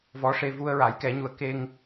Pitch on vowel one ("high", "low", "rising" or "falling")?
rising